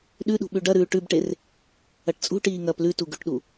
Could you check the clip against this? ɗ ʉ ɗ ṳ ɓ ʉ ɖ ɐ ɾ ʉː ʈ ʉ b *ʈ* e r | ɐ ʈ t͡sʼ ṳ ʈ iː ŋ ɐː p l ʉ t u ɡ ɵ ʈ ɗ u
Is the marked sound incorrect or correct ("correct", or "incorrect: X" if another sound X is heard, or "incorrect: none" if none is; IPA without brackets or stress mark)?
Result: correct